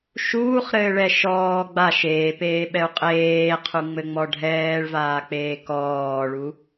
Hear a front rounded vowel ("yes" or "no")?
no